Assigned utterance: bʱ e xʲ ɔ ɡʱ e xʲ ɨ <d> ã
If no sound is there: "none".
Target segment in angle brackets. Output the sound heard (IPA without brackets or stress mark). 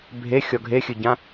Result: ɟ